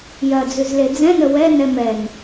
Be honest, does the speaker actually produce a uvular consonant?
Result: no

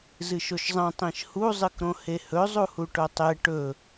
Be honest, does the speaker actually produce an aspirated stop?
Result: no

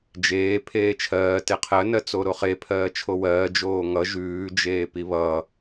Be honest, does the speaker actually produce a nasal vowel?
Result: no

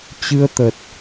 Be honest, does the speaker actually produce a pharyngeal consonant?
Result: no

